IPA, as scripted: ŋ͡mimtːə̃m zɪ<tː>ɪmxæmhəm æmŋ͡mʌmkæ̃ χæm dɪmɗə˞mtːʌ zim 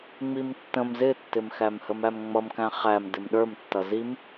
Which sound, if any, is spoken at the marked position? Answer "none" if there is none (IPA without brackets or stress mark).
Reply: tː